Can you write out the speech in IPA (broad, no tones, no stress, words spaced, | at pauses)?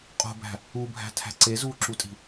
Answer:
qʼo̤bæ̤ | ubʱæ̤tʰæ̤ ǀezuːǁutʼi̤